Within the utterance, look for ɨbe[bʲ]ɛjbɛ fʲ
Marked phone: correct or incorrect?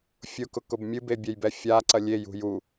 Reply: correct